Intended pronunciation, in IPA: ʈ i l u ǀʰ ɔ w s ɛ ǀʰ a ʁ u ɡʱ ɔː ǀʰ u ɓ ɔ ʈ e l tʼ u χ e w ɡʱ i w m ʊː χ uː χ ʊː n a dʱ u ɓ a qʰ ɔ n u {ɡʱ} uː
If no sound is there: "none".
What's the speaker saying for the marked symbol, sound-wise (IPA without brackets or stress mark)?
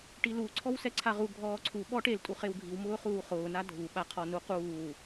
q